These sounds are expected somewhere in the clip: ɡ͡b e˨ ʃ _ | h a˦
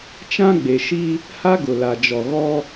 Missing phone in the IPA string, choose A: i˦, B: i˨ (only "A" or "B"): A